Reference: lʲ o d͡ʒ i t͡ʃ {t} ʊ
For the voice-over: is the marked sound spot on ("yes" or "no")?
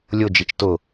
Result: yes